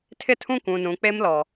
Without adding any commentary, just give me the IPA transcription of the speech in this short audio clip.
tʰ ɪ˦ tʰ ũ˦ kʷ ũ˨ n ũ˨ k͡p e˦ m l ɔ˨

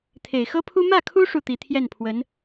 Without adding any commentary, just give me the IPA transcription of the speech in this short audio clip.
t̪ʰ e˨˩ ɪ̯ x ɤ˥ pʰ u˥ m ä˥˩ kʰ u˥ ʂ u˥˩ t̪ i˧˥ t̪ʰ j ɛ˥˩ n pʰ w ə˧˥ n

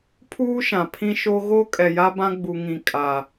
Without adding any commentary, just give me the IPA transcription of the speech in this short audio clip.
pʰ uː˦ ʃ ã˨ pʰ ĩ˦ ʃ o˦ ɣ o˦ kʼ ɛ˨ j a˦ b ã˦ ɡ͡b u˨ ŋ ĩ˨ kʼ a˨

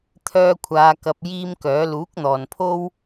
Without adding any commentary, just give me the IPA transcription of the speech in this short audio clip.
t̪ʰ œː˥ kʷʰ aː˧ k ɐ˧ p̚ j iː˥ m k œː˨˥ l uː˨˥ k̚ n̪ ɔː˨ n pʰ o˥ w

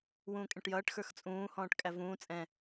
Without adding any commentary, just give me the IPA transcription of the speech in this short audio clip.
w ũː kʼ ɛ̃ ʈ j ʌː ʈ x ə˞ x t͡sʼ ũː h ɔ̃ː ʈ kʼ æ v ũː t͡sʼ ɛ̃

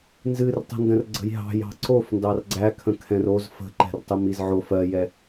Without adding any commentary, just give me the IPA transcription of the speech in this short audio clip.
n z ɨ r tˤ ə̤ n d ə̃ r ɡ͡ǀ ə̤ j ɦ ɑ̤ j ɑ̤ ǀ o f n d ɑ r ɡ͡ǀ æ kʰ ə̃ kʰ ɛ̃ r o z f ə̤ ǃ ɛ̤ r tˤ ɨ m i z ʕ o f ɜ j ɛ

